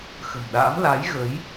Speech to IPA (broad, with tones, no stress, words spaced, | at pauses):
xə̤˨˩mɗa̰ː˧˥m la˨˦jɣə˨˦j